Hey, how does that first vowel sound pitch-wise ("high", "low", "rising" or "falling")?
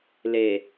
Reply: low